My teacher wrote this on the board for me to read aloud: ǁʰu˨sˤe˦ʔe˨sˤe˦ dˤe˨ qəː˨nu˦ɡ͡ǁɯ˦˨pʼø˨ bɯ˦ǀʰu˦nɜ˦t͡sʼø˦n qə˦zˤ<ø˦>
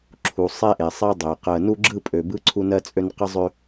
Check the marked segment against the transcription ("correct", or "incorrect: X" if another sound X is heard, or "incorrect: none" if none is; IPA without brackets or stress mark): correct